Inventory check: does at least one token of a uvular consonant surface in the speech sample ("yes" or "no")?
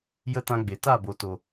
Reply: no